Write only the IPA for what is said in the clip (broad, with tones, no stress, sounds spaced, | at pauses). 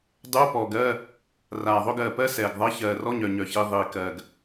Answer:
dˤ uː˧˥˧ p ɔ˨˩ ɡ ɜː˧˥˧ | r aː˨˩ ðˤ ɵ˧˥˧ ɡ ɜː˨˩ p ɜ˧˥˧ s ɛː˨˩ ɡ ðˤ ɜ˧˥˧ ç ɜː˨˩ r ɔ˧˥˧ ɲ œ˨˩ ɲ œ˨˩ ç i˨˩ ðˤ iː˨˩ k ɜː˨˩ ɡ